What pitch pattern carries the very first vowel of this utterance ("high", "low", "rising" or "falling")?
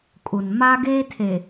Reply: low